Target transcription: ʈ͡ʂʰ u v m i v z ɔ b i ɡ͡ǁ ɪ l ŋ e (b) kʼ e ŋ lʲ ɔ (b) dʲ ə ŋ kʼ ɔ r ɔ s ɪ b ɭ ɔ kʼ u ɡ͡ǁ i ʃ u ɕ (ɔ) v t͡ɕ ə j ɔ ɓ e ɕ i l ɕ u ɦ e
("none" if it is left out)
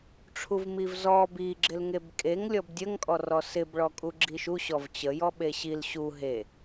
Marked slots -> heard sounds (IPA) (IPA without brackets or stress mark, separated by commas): b, b, ɔ